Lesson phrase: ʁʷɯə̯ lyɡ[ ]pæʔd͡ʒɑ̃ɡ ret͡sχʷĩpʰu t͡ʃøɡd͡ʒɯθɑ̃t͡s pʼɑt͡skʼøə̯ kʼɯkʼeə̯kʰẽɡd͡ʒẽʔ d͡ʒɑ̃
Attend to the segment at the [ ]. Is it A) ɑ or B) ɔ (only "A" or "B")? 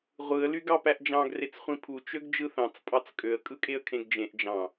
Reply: A